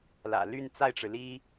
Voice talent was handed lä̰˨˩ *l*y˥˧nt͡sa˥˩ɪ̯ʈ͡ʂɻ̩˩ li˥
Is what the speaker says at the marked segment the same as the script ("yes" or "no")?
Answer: yes